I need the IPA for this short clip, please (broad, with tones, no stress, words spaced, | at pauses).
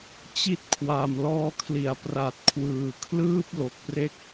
t͡ɕi˥˩t̚kʰwa˨˩m lɔː˦˥kʰli˨˩a̯pra˨˩t̚ kʰwɯː˨˩kʰlɯː˥˩p̚ lo˨˩k̚pre˥˩k̚